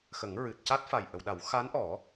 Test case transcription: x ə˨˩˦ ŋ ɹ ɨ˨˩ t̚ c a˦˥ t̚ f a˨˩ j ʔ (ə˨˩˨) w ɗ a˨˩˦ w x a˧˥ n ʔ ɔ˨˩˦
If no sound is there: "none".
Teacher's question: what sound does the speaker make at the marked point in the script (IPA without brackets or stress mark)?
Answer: ə˨˩˨